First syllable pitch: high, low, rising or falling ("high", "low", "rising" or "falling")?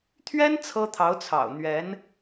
high